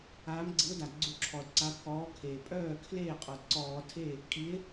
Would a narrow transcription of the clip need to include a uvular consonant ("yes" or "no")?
yes